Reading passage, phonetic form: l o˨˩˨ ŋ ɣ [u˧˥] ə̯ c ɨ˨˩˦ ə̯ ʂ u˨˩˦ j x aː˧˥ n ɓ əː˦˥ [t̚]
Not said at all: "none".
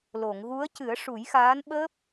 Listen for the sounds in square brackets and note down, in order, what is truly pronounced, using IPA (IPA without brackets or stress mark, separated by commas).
u˧˥, p̚